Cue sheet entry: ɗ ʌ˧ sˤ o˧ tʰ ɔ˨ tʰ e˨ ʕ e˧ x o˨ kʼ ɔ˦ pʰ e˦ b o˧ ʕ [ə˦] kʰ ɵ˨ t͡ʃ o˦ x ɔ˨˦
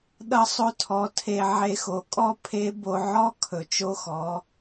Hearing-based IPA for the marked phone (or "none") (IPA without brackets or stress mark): ɔ˦